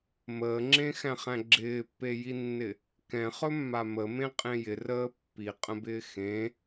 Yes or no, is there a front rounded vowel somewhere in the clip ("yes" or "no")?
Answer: no